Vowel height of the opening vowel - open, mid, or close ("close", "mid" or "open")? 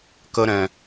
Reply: mid